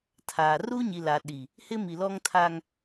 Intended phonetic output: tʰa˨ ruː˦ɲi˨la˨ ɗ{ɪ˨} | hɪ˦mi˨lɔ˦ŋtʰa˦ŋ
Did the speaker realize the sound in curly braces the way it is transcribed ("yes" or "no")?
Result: no